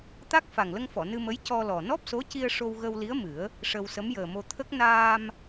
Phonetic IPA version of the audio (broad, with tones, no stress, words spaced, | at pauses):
t̪a˦˥k̚ fa˨˩ŋlə˧ŋfɔ˨˩˨ nɨ˧mə˧˥j cɔ˧lɔ˨˩ nɔ˦˥p̚so˧˥ci˧ə̯ ʂo˧wɣə˧wli˧˥ə̯ mɨ˨˩˦ə̯ | ʂə˧wsə˧˥m jəː˨˩mo˧ t̪ʰə˦˥k̚ naː˧m